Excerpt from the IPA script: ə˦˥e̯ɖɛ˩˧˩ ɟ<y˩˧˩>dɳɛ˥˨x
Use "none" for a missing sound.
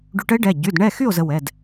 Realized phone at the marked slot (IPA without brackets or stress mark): y˩˧˩